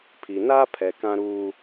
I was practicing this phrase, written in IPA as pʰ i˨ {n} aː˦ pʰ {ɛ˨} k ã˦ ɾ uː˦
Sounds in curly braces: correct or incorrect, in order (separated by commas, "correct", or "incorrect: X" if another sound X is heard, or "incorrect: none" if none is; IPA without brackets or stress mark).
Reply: correct, correct